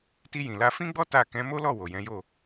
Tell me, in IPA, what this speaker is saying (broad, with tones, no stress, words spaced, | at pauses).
ti˧jĩ˨la˧ fĩ˦ɡ͡bɔ˦ ta˦˨ kɛ̃˨˦mo˦lɔ˦˨ wo˨jɛ̃˨˦jo˦˨